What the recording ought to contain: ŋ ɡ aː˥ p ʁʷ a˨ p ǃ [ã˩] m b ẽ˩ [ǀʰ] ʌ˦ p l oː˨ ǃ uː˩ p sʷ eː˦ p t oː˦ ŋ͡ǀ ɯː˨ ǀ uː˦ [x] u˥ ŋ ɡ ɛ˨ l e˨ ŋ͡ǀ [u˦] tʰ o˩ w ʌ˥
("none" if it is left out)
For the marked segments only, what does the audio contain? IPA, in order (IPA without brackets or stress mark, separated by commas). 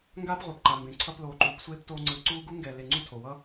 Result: a˩, ǀʰ, ɡ, u˥